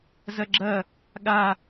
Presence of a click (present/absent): present